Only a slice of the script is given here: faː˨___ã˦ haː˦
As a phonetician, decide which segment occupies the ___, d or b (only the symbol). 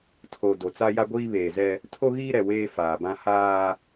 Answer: b